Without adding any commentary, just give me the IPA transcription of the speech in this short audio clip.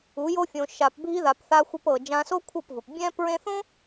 u˨˦jo˦fʲõ˧ ʃa˨pbʱi˧ða˨p θa˧xʷe˧pɤ˨ d͡ʒã˧so˦kʷʰɤ˦˨pvɯ˨p bʲɛ̃˦ pɹẽ˦ θõ˦

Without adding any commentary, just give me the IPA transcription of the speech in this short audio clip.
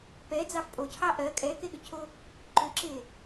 pɛd͡zɑf pʼocʰɑ ʔɜ kʼɛkeɠʏcʰo | ǃʏǁe

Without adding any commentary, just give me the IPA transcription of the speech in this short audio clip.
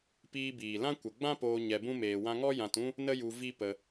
piː˧biː˨lã˦ kʷə˨ɡ͡bã˦poː˧ ɲɛ˧bũ˦meː˧ wã˧ŋɔ˦ jã˧tũ˦ | nə˦ju˧ vi˦pə˧

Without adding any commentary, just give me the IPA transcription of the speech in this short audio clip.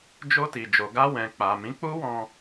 d͡ʒo˧ti˨ d͡ʒo˨ɡa˧wɛ̃˨ k͡pa˨mĩ˨˦k͡pu˦wɔ̃˧

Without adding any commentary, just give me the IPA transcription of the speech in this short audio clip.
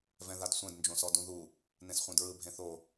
vɛ̃ðadsʷɛ̃d nd͡ʒõsɔdũðu | nẽsχʷẽdɹɯ bʱẽθo

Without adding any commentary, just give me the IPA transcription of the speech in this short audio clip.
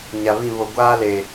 ɲa˨βĩ˦˨ βo˨ ɡʷaː˦le˨

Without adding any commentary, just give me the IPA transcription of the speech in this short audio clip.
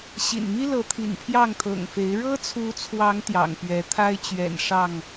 ɕḭ˨˩nmi˦lɤ˨˦ t̪ʰḭ˨˩npʰjɑ˥˨ŋt̪ʰɤ̰˨˩ŋ fe˨˦ɪ̯ ɻɤ˦t͡sʰu˨˦t͡sʰwɑ˨˦ŋ t̪jɑ̰˨˩ŋpɥɛ˨˦t̪ʰa˦ɪ̯ t͡ɕɥɛ̰˨˩nʂɑ˥˨ŋ

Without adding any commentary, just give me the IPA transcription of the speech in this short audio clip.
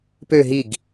pø ɦiɡ

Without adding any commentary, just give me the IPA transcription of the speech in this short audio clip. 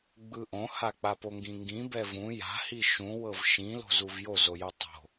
ɡ͡bɯʔõha k͡papoŋɡĩŋɡĩ bɛvũ ja̤hi ʃũwɤv ʃĩlo̤ zuvjozo jotˤo̤

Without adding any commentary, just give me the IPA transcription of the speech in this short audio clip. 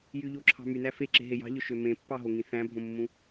jyʎoǁʰɑ̤ mynæ feǁe̤ɦe jɑ̤ʎøʃø mẽpːɑɦoŋĩ θæ̃bʱõmːũ

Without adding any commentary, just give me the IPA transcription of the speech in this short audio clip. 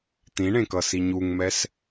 t̪ĩɳẽkʌsi ɲuŋmɛs

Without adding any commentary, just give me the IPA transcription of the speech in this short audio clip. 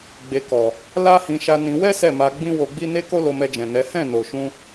ɡ͡be˧kɔ˨ | la˦hĩ˧ʃa˧ nĩ˧ wɛ˦ sɛ˦˨ma˧ ɡ͡bĩ˦wo˧ɡ͡bi˦ ne˦ko˦lo˧mɛ˧ d͡ʒɛ̃˨nɛ˨˦ hɛ̃˦˨no˨ʃũ˧

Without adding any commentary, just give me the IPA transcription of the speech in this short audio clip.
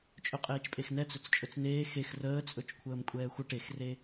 t͡ʃʼɵqʼeːt͡ʃpʼexnɛ t͡sɵt͡st͡ʃʼɵt͡sneː xex rəːt͡sʼɵt͡ʃkʷʰəːm kʷʼɛːxʷə ʈexre

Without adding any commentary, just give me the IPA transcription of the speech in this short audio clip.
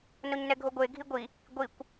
noɲnɛɡʱoɡʷe ɡʱiɡʷi | ɡʷikʷ

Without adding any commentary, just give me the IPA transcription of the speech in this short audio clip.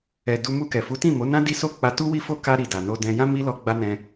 ɛ˨ du˧ mu˧kɛ˨ fu˨˦tĩ˦˨mo˨˦nã˦ di˦so˦˨ k͡pa˧ tu˦wi˦fo˦ ka˧ɾi˨ da˨ no˧dɛ̃˧ jã˦ mi˦lɔ˧ ɡ͡ba˦nɛ̃˧

